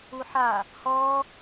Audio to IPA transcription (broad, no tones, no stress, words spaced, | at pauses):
uħa | hɔ